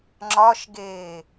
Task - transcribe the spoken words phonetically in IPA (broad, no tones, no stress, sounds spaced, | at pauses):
ŋ͡ǁ ɒ ʃ ɡ eː